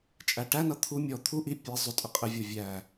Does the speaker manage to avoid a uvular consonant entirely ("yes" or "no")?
no